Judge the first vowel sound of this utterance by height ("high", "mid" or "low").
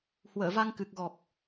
mid